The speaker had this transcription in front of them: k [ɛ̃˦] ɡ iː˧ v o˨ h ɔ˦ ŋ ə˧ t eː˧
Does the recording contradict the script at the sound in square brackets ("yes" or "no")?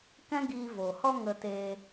no